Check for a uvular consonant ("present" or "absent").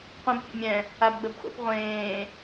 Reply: present